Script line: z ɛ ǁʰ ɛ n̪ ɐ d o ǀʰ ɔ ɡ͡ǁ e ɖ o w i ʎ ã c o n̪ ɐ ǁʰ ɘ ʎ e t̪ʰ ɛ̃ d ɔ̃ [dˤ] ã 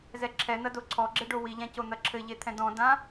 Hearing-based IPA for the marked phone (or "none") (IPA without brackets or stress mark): d